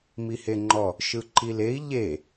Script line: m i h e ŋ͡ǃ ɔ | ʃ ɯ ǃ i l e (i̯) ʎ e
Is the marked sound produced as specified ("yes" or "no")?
yes